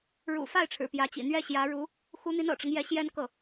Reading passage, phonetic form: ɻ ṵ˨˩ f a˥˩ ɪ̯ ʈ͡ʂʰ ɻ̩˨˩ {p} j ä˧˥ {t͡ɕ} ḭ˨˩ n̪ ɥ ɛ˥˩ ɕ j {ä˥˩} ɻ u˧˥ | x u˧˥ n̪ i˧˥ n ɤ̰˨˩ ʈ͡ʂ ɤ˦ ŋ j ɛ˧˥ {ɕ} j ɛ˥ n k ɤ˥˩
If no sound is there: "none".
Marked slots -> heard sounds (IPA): p, t͡ɕ, ä˧˥, ɕ

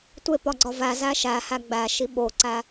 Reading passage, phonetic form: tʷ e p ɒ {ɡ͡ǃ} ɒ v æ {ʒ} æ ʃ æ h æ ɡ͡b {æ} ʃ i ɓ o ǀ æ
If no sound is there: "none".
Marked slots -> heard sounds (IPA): ɡ͡ǀ, z, æ

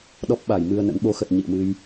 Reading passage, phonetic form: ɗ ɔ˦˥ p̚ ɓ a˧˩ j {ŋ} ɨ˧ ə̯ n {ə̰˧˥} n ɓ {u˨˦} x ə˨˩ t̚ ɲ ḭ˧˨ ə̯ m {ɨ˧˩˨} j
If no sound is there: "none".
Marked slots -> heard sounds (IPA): m, ə̰˧˥, o˨˦, ɨ˧

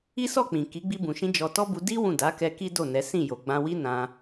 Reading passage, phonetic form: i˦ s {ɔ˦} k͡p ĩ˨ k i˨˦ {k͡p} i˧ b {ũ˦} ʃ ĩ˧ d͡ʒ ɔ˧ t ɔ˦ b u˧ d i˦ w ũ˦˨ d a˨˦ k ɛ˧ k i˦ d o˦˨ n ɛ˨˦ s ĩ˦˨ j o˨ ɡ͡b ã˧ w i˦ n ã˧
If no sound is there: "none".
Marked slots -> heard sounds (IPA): ɔ˦˨, ɡ͡b, ũ˨

